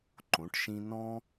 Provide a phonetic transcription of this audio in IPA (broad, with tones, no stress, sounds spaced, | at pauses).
ǃ õ˩˧ ʈ ʃ ĩ˧ n ɔ̃˥